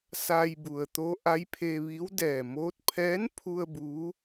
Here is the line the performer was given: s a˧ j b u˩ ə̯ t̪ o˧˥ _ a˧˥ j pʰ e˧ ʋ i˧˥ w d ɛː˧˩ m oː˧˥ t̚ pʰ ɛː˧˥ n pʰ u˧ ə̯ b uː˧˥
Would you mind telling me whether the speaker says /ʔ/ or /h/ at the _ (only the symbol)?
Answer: ʔ